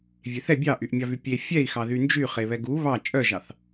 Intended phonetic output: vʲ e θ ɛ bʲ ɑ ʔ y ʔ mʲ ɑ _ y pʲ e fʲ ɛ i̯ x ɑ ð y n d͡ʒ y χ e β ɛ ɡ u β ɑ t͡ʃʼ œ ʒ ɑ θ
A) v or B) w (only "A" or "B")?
A